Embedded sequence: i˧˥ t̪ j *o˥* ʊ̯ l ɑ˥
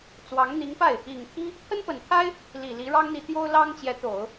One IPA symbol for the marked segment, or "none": o˥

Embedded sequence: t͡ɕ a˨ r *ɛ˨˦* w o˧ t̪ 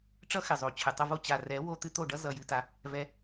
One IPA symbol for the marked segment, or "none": ɛ˨˦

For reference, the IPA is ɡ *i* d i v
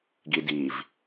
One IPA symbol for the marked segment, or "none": i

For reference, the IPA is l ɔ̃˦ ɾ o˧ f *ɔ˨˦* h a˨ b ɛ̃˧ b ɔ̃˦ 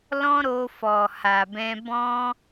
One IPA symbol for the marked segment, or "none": ɔ˨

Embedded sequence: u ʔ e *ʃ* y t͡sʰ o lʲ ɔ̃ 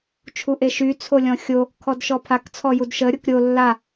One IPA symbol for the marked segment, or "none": ʃ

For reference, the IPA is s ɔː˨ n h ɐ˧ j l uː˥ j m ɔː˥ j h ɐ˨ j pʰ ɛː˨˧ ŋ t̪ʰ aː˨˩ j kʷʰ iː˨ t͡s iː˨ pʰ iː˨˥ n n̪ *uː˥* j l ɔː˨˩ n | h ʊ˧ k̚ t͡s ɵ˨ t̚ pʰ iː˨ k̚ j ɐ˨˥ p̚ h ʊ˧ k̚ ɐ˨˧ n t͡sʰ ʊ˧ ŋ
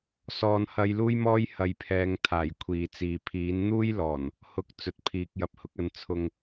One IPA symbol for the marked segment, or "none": uː˥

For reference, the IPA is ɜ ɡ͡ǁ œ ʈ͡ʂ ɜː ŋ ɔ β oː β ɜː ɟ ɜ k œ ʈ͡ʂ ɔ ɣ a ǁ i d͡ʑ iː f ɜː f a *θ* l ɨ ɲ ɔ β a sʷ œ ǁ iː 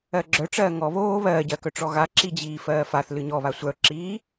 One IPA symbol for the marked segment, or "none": θ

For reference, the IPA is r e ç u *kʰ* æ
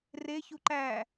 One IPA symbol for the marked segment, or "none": ǃ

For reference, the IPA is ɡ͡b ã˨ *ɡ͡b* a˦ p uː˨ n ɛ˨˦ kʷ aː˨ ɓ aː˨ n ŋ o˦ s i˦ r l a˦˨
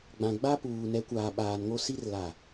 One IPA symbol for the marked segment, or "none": ɡ͡b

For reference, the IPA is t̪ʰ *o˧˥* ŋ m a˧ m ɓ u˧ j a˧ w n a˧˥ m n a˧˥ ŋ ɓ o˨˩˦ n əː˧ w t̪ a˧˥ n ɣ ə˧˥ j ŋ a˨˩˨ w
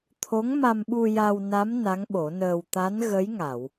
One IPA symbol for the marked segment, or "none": o˧˥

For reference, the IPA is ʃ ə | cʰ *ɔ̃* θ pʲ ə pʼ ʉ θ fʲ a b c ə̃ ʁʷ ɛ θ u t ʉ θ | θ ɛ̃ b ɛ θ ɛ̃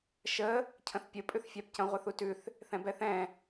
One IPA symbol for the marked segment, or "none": ə̃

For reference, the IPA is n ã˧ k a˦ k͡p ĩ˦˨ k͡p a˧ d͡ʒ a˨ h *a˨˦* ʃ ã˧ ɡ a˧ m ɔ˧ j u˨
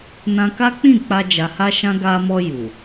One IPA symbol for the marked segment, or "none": a˧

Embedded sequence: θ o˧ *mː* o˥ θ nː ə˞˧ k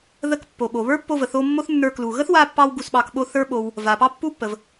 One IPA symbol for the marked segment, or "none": mː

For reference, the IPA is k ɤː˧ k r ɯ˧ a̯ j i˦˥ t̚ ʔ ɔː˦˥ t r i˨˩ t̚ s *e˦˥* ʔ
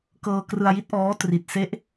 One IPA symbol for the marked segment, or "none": e˦˥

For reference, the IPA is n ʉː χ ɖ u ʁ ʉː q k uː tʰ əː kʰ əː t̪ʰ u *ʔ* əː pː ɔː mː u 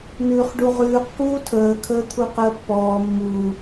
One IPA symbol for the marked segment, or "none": q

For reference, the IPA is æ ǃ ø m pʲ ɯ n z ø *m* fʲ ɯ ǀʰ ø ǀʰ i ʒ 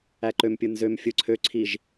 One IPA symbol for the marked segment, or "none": m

